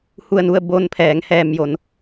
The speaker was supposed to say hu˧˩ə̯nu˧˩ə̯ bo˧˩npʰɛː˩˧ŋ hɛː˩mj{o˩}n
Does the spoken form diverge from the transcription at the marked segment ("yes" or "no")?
no